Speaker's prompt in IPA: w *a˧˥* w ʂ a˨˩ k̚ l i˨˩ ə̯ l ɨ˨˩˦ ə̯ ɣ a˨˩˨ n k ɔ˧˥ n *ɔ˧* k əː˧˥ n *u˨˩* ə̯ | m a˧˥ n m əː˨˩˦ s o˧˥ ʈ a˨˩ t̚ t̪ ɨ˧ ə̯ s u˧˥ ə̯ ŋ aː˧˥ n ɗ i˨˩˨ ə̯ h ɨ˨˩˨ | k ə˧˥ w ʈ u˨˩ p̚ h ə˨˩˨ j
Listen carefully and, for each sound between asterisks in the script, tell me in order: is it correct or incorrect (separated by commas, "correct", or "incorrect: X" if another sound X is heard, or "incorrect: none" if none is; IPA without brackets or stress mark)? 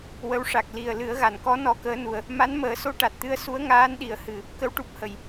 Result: incorrect: ə˧˥, correct, correct